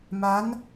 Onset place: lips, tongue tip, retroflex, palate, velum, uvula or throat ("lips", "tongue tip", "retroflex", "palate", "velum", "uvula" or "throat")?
lips